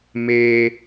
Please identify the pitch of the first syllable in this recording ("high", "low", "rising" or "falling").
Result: low